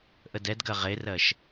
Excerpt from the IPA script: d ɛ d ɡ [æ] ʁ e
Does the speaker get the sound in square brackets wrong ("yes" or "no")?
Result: yes